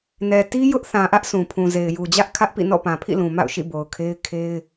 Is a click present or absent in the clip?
absent